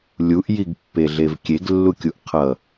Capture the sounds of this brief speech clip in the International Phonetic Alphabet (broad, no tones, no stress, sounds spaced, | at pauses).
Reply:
lʲ u ʔ j i ɡ pː e ɮ e v kʲ e ɡ lː u kʲ u ʔ qʰ ʌ